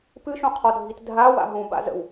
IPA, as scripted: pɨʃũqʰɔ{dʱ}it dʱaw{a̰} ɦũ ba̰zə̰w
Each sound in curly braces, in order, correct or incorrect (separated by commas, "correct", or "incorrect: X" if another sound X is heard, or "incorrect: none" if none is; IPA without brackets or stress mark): correct, correct